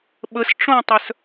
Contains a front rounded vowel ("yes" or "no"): yes